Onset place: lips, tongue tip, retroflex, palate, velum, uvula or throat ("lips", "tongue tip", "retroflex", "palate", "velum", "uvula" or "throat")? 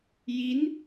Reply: palate